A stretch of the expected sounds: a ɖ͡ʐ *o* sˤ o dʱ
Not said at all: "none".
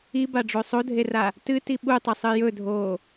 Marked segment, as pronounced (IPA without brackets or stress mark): o